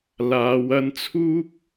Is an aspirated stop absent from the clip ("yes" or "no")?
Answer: no